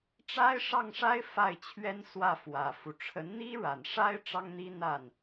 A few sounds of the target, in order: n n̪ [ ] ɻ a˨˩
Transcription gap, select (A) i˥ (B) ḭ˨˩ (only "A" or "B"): A